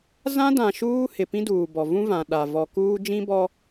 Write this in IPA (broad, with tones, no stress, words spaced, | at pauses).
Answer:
zã˦dã˨ ʃuː˦ hɪ˨ pĩ˦duː˨bɔ˨ vũ˦vã˨ ɗa˨ vɔ˨kuː˦ d͡ʒĩ˦bɔ˦